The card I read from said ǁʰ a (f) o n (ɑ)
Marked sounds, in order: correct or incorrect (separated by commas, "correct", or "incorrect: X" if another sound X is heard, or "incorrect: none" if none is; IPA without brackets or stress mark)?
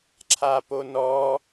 incorrect: p, incorrect: ɔ